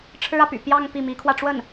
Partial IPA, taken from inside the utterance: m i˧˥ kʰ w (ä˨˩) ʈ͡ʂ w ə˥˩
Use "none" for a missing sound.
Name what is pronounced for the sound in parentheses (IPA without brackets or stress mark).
ä˧